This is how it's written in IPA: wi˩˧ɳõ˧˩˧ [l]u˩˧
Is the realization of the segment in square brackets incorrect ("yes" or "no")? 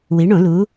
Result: no